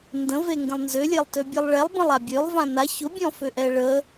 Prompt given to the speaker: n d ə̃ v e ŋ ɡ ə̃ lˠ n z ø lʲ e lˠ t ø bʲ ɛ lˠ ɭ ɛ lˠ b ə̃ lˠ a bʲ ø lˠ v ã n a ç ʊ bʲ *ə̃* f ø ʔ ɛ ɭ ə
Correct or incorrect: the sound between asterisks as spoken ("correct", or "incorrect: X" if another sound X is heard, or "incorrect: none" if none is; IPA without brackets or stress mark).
incorrect: ɔ̃